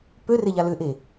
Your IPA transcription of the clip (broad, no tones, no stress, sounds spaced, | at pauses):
p ø r e ʎ a l ʏ ʔ e